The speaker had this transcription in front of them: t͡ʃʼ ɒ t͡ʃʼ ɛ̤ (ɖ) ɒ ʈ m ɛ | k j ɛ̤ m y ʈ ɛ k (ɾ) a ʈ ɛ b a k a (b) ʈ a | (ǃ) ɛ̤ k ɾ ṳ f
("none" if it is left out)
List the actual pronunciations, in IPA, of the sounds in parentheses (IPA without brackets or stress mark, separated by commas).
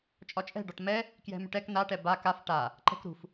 ɖ, n, f, ǃ